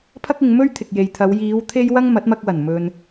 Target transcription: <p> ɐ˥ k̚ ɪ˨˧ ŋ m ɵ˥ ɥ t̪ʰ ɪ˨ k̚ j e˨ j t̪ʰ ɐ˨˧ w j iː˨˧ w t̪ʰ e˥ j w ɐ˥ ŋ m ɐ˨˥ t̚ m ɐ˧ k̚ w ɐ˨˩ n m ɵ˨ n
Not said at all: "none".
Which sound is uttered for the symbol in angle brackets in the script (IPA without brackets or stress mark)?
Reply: pʰ